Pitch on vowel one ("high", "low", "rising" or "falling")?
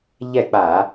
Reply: falling